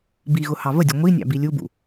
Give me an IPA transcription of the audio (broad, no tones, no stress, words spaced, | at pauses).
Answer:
biɣʊ hɑvədʲʊ ŋʷinʲɑ̰ bilʲubṵ